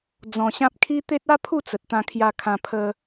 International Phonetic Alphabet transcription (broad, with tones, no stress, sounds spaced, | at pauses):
d͡z ɔ̃˧ ɕ ã˦ p̚ kʰ i˦ t̪ e˦ t̚ a˦ pʰ u˥˧ t͡s ə˨ t̚ t̪ ã˧ kʰ j a˧ kʰ ã˧ pʰ ə˧